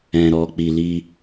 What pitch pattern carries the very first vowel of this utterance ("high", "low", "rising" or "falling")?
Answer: low